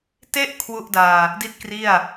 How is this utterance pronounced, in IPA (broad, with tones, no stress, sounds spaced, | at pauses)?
t e˥˩ ʔ kʰ w u˥˩ ʔ d aː˧ | d i˥˩ t̚ k r i˥˩ a̯